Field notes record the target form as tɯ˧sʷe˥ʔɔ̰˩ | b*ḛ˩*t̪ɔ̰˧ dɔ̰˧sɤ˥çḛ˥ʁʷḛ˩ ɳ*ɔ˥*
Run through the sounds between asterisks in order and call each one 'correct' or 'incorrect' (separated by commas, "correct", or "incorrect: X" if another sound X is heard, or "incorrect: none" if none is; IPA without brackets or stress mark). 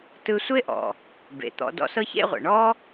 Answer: correct, correct